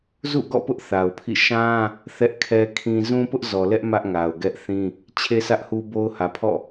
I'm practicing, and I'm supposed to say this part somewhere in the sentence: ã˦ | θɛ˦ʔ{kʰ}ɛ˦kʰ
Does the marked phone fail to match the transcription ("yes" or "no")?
no